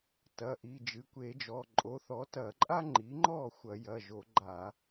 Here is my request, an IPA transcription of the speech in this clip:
tɐ˩˧˩ ʔi˩˧˩d͡ʒɨ˩˧˩kʷe˧˩˧d͡ʒɔ˩˧˩ ǃʼo˩˥θɔ˩˥tɐ˧˩˧ǃʼa˥ ŋ͡ǃi˩˥ŋ͡ǃɔ˥˩ xʷɐ˧˩˧jɐ˩˧˩ ʒo˧˩˧ɡ͡ǃa˧˩˧

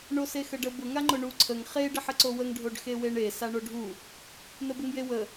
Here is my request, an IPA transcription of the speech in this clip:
ɳosexəɖə bʊ ŋaŋ͡ǃʊɳu ǀʰəŋ χe ɖəħəǀowəŋ ɖʱoɖxeweɳe saɳoɖʱu | nəbəŋjewə

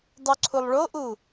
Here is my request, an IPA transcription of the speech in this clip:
dˤuǀʰulˠɭoʔu

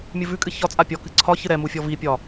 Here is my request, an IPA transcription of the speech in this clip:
mʲɨvʉkʼɨ çɒ t͡sʼapʲɔkɨ ǀʰɒ çɨɾɛmu fʲɔvipʲɒ

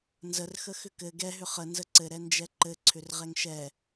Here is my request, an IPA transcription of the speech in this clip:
nzərxəxʏ kɘ ɡɛɦʏ χə nzəǀɘ ɾɛnd͡ʒɛǃɘ ǀʰʏrʁɛŋʃɛ

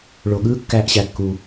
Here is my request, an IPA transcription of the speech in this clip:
ɭo˩ɠɯː˥ kːæ˧ʔɕæ˩ kːuː˩

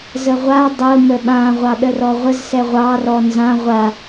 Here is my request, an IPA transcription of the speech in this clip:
zəʁʷa dˤʊ məɓã ʁʷɑɗərɔʁʷəz sɛʁʷɑ rɔnzã ʁʷa

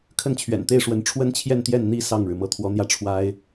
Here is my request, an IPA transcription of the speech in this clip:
kʰə˥˩nt͡ɕʰɥɛ̰˨˩nt̪e˥˩ɪ̯ʂwə˧˥n ʈ͡ʂʰwə˥nt͡ɕʰjɛ˥˧nt̪jɛ˥˩n n̪i˥ sɑ˥˩ŋɻɻ̩˩ mɤ˧˥t̪ʰwɔ˧˥n̪jä˥˩ ʈ͡ʂʰwa˥ɪ̯

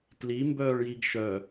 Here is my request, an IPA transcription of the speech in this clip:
tli mbœːɭjiɡʃœ

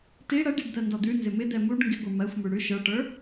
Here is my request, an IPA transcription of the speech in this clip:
ti ɽɜɖiɖ d̪ɜndɔd̪ʉnzɪ mɪd̪ɛ muɖ ŋɡɪɡʷə˞ mɜxʷmʉ ɽʉ ʃə˞ʈə˞

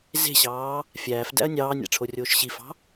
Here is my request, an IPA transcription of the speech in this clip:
ze̤ɕɑː | fʲæːfdæ̰ɐ̯ nʲɑːnʲæ̰ ʈ͡ʂʰorʲoːʃɕifɑ̤

